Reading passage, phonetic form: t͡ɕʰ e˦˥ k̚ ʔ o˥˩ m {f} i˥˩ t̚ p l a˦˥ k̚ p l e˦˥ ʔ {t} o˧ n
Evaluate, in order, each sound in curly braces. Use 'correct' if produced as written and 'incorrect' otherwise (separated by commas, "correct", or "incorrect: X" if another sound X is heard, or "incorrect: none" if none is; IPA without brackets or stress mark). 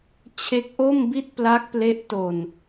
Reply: incorrect: b, correct